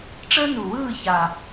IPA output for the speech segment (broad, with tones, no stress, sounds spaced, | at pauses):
ʈ͡ʂ əː˥ n u˨˩ w ɯː˦˨ ç a˨˩